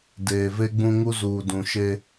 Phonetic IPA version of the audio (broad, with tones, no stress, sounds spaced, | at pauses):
d eː˨ v e˦ ɡ͡b ũ˦ ŋ u˦ z uː˨ d ũ˨ ʃ e˦